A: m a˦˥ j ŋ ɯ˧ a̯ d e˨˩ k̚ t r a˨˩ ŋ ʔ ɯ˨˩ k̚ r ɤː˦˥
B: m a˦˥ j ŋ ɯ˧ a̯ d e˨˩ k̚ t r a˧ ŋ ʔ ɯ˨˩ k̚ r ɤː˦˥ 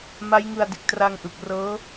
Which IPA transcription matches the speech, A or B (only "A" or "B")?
B